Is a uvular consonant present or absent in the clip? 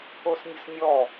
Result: absent